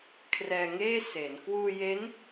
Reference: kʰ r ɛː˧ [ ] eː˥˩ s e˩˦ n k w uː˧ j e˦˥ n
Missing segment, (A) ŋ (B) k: A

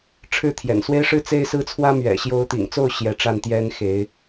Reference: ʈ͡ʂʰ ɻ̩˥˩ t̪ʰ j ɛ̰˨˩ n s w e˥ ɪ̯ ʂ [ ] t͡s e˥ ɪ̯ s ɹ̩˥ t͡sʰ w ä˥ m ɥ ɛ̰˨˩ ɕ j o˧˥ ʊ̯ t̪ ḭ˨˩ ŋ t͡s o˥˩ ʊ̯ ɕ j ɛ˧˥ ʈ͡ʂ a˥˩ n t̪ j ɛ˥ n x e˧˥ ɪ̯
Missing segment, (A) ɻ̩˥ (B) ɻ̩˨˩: A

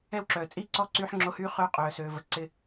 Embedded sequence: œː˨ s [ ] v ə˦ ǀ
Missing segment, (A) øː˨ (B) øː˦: B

